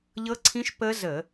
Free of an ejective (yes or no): yes